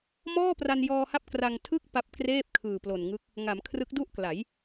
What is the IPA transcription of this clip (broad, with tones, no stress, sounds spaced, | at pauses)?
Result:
m ɔː˥˩ p r a˧ n j ɔː˧ h a˦˥ p̚ k r a˧ ŋ tʰ ɯ˥˩ k̚ p a˦˥ p̚ k r eː˥˩ p̚ kʰ ɯː˨˩ p l o˨˩ n ŋ ɯ˦˥ k̚ | ŋ a˩˦ m kʰ r ɯ˦˥ k̚ d u˥˩ ʔ k l a˩˦ j